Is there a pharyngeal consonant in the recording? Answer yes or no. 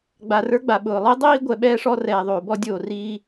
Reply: no